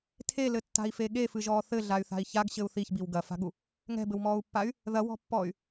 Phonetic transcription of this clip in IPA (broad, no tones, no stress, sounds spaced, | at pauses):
tʰ e l ɘ tː a̤ i̯ f e ɠ e f ɨ ʒ ɔː θ ɘ ɮ a y̯ θ a̤ i̯ ç a ɡ ɕ ɘ u̯ θ i ç b i w ɡ ɐ f a̤ ɠ u | ŋ ɛ̤ b ɘ w m ɔː u̯ pː a y̯ | ð ɐ w ɔ̤ pː ɔː y̯